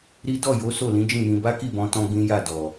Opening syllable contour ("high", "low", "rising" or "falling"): high